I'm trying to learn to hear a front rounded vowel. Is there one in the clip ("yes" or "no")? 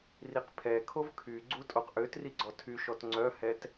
yes